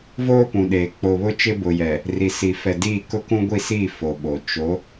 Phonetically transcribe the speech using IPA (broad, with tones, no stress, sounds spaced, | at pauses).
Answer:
v oː˦ p ũ˨ ɗ eː˨ k͡p o˨ β ʊ˦ t͡ʃ ɪ˦ b ʊ˨ j ɛ˨ | r i˨ s i˨ f ɛ˨ d iː˦˨ k ʊ˦ k ũ˦ ɡʷ i˦˨ s iː˦˨ f o˨ ɓ o˨ t͡ʃ o˨˦